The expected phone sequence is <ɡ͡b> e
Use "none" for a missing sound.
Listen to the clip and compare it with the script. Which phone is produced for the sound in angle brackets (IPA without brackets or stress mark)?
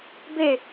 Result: b